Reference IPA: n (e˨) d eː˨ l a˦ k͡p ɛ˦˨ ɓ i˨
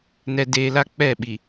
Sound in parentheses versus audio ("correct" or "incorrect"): incorrect